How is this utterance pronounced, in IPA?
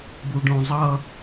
buɖõzˤʌ

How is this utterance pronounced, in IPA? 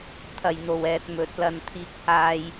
t̪ʰɐ˨˩jn̪o˨˩w ɛː˨t̚mɵ˨˥t̚lɐ˧n t̪ʰiː˧k̚haː˧j

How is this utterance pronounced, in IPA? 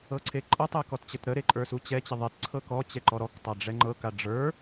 ɤǀʰeǃʼətˤe kɔtt͡ɕətɾəɾe ǃʼə˞sut͡ɕɛt͡ɕə ðˤetǀʰɤk ɔt͡ɕɛ ǃɔɾɔktˤa ɖ͡ʐɛŋ͡ǃɤka ɖ͡ʐə˞

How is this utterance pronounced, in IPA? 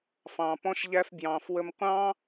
fɑ̃ː˩ pɔ̃˧ʃ ʎæ˧fbjɑ̃ː˩f wə˧mqʷɑ̃ː˥

